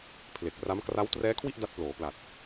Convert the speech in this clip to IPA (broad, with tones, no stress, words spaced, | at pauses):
pʰle˨˩k̚ra˦˥m kra˦˥w trɛː˦˥kʰwi˥˩ʔ da˦˥t̚ploː˩˦pla˨˩t̚